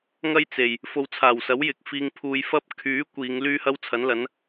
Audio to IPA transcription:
ŋ ɐ˥ j t͡s e˨˩ j | f o˨˧ w t͡sʰ aː˨˩ w s ɐ˨˥ w j ɪ˨ k̚ f iː˧ ŋ pʰ uː˨˧ j f ɐ˥ p̚ kʰ yː˨˥ kʷ iː˨˧ ŋ l yː˥ h ɐ˥ w t͡sʰ ɐ˨˥ n l ɐ˨˥ n

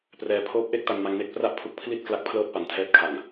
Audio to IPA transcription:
p r ɛː˧ pʰ oː˦˥ p̚ ʔ e˥˩ k̚ t a˧ n m a˧ ŋ n e˥˩ k̚ p r a˥˩ ʔ pʰ u˦˥ k̚ pʰ l i˥˩ t̚ k l a˦˥ k̚ pʰ l ɤː˥˩ t̚ p a˨˩ n tʰ ɛː˦˥ t̚ kʰ a˨˩ ŋ

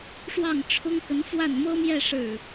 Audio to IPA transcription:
ʂ w ɑ˥˩ ŋ ʈ͡ʂʰ ʊ˥ ŋ k ə˧˥ n f w a˥˩ n m ɤ˥ m j ɛ˥˧ ʂ ɻ̩˥˩

